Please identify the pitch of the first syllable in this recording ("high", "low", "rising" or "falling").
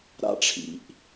high